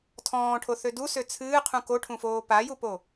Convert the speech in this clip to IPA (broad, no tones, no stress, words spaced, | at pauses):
tʰɔ̃ːʈʰoθø dusø t͡sʰɨːqʰũ koʈʰũfoː pajupo